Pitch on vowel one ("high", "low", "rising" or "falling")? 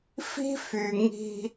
high